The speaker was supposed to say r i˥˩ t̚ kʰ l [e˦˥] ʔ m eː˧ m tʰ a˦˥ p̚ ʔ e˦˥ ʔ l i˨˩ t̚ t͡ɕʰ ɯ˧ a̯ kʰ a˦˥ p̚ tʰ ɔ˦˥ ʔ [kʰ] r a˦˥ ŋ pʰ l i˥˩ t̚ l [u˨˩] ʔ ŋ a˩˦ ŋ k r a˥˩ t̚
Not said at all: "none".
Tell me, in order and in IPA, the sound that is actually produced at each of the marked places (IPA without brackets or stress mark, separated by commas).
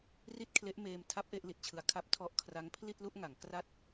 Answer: e˦˥, kʰ, u˥˩